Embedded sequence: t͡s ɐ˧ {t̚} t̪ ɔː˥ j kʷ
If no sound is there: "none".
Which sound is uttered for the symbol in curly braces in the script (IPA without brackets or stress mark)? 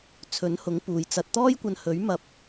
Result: t̚